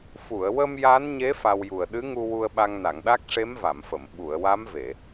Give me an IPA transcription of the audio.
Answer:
f u˨˩˨ ə̯ w ə˧ m j a˧˥ n ɲ e˧˥ f a˧ w j u˨˩ ə̯ ɗ ɨ˧˥ ŋ u˧ w u˧ ə̯ ɓ a˧ ŋ n a˨˩˨ ŋ ɗ a˦˥ k̚ ʂ e˧˥ m v a˨˩˨ m f ə˨˩˨ m ɓ u˨˩˨ ə̯ w a˧˥ m v e˨˩˨

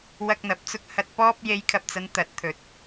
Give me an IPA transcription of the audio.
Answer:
w ɐ˧ k̚ n̪ ɐ˨˥ p̚ t͡s ʊ˧ k̚ h ɐ˨ t̚ p ɔː˧ p̚ j e˨˧ j kʰ ɐ˨ p̚ t͡s ɐ˨˧ n t̪ ɐ˨˥ t̚ t̪ʰ ɵ˨˥ t̚

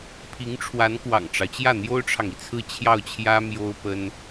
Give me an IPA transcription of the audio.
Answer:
pʰ i˧˥ ŋ ʈ͡ʂʰ w a˧˥ n k w ɑ̰˨˩ ŋ ʈ͡ʂ ɑ˦ ʊ̯ t͡ɕ j ä˥˩ n̪ j o˥ ʊ̯ ʈ͡ʂʰ ɑ˨ ŋ i˩ t͡sʰ ɹ̩˥˧ t͡ɕʰ j ɑ˥˩ ʊ̯ t͡ɕʰ j ä˥ m j o˥ ʊ̯ p ə˥ n

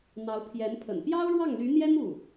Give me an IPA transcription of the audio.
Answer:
n̪ ɑ˧˥ ʊ̯ pʰ j ɛ˧˥ n pʰ ə̰˨˩ n p j ɑ˥ ʊ̯ ɻ w ɑ˥˩ ŋ l y˧˥ n̪ j ɛ˥ n u˥˩

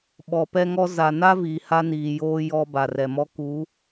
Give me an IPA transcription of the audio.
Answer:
ɓ ɔ˨ p ɛ˦ ŋ ɔ˦ z a˨ n a˦ v iː˨ h a˦ n iː˨ j oː˦ j ɔ˦ b a˨ r ɛ˨ m ɔ˦ k u˨˦

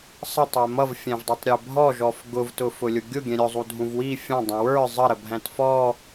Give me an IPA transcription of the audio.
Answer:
sˤ ʌ tˤ ɛ m ʌ v fʲ æ̃ v dˤ ə˞ tˤ ɾʲ ɛ bʱ ɔ ʒ ɔ f ɡ ʊ v t ʊ f ʊ lʲ ʊ ɡʲ ʊ ɡʲ ɛ̃ ɾʲ ʊ zˤ u dʱ ũ v w i fʲ ɑ̃ dˤ ə̃ w ə˞ zˤ ə ɾ ə bʱ æ̃ t f ɔ

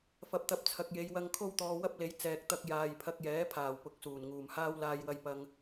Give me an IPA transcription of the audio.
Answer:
f ɐ˨˥ p̚ t̪ ɐ˨˥ p̚ t͡sʰ ɐ˨ k̚ j e˨˧ j w ɐ˧ ŋ kʰ o˥ w t̪ ɔː˧ w ɐ˥ p̚ l e˨˥ j t͡s ɛː˨ k̚ t̪ ɐ˧ k̚ j aː˨ j pʰ ɐ˧ k̚ j ɛː˨˥ pʰ aː˨˩ w p ʊ˨˥ k̚ s uː˨˩ n ŋ uː˨˩ m h aː˥ w l aː˧ j w ɐ˧ j p ɐ˧ ŋ

